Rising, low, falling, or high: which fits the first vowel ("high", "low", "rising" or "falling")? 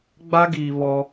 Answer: high